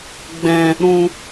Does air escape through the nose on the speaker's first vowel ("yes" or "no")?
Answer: yes